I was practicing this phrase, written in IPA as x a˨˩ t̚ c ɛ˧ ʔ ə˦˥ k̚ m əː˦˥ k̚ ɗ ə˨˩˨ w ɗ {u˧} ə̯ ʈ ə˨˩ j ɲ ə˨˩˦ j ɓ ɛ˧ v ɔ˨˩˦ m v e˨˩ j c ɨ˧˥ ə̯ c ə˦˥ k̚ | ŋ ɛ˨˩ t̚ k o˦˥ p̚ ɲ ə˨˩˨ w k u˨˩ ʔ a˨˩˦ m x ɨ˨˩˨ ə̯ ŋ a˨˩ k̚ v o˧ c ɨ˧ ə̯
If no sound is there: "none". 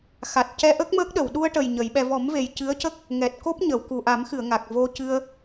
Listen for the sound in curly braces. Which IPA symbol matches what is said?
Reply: u˧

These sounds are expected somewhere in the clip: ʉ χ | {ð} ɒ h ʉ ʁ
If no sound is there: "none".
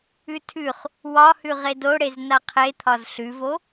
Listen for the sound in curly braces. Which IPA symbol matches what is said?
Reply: w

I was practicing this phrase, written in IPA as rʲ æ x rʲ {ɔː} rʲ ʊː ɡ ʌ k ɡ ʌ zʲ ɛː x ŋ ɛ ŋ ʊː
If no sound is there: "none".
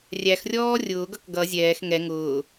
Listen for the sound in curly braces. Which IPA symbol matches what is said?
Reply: ɔː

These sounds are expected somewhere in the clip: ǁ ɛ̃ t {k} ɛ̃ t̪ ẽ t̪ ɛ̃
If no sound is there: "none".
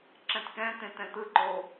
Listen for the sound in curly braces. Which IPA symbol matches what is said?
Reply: k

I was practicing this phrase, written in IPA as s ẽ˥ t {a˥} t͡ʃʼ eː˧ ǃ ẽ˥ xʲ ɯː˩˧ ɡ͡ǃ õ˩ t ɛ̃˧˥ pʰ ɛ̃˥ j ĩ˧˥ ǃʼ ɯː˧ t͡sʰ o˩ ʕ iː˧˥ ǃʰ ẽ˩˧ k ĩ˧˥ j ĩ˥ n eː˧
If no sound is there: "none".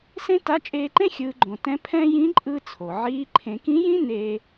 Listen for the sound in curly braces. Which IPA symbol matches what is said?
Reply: a˧˥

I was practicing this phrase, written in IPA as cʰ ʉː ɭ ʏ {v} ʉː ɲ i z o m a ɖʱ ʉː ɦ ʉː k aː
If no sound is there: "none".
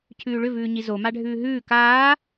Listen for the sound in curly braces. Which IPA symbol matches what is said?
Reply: v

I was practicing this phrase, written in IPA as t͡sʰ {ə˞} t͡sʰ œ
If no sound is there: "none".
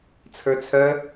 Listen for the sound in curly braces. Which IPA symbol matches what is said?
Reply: ə˞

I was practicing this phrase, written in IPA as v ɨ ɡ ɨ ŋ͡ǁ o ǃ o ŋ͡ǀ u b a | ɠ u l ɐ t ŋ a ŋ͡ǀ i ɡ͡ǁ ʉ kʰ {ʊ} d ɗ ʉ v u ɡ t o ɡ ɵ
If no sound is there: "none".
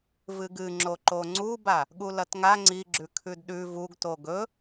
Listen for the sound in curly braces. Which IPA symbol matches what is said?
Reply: ʉ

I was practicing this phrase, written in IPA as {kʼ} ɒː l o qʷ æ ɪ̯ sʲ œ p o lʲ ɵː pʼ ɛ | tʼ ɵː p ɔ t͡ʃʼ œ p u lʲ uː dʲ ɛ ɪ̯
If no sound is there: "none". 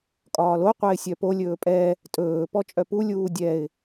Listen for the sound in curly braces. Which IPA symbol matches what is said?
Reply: kʼ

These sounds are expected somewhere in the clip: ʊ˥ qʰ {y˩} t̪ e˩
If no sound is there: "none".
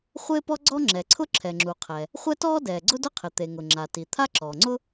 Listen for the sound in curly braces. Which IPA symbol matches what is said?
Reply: ɪ˩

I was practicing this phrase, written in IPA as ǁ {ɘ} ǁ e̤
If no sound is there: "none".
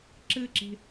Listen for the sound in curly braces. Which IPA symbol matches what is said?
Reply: ɘ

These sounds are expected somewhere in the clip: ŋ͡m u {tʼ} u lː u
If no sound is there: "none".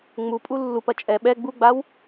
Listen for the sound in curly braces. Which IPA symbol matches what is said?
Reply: pʼ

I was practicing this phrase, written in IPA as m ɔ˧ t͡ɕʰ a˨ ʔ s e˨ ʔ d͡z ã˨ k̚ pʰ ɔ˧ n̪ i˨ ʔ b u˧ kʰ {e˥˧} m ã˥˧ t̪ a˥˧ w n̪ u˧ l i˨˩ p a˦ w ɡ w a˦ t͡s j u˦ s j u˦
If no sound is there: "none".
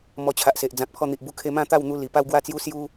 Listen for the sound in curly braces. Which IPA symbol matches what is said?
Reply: e˧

